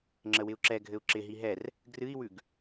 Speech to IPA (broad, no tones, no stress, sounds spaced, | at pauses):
ŋ͡ǁ ə w ɪ u̯ ǁ ɛ ɡʱ ɘ u̯ ǁ ɪ ɦ i ɦ ɛ r | ɡ r ɨ i̯ w ʉ ɡ